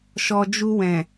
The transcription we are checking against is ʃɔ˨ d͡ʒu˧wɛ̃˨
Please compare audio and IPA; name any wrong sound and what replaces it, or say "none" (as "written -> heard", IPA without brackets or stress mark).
none